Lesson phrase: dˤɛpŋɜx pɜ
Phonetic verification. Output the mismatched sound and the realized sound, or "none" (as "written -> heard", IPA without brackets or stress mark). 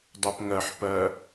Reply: x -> ħ